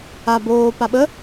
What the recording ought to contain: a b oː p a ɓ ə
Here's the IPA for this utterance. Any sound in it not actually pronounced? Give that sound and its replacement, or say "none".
none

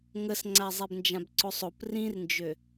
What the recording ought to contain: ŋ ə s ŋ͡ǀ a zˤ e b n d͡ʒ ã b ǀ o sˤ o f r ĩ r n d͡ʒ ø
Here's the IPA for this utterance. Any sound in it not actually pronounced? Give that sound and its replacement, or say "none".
f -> p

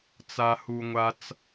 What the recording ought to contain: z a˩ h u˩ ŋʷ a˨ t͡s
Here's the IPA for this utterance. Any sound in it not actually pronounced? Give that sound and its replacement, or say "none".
z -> t͡s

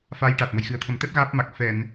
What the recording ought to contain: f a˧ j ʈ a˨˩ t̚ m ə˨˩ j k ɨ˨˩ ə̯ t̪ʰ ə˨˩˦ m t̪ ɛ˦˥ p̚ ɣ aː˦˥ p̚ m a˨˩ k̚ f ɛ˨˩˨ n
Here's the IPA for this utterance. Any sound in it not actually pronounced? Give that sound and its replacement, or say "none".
k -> x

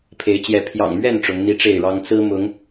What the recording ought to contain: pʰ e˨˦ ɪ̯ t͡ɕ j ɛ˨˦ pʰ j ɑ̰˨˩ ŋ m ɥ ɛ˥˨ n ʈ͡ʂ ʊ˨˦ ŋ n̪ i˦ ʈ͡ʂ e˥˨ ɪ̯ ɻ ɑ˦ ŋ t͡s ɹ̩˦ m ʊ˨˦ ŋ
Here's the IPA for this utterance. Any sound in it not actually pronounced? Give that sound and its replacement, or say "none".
none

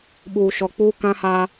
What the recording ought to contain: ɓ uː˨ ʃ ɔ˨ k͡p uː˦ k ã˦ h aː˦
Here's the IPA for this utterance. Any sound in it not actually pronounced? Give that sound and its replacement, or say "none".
none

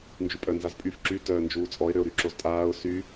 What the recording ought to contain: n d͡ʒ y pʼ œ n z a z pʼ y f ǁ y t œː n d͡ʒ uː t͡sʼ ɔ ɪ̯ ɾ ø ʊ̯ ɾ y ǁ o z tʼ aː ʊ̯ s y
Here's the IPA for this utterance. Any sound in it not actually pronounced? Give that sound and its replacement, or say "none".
none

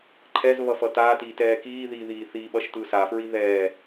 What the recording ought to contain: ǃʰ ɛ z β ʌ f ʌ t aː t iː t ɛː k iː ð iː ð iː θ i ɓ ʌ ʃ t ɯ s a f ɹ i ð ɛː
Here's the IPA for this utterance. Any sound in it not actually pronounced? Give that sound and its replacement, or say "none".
none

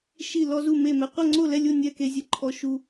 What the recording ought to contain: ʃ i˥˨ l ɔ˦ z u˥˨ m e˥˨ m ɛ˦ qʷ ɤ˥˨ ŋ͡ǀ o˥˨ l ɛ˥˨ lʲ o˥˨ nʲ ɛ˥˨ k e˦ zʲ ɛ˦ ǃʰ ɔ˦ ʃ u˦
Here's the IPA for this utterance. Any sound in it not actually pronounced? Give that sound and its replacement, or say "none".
none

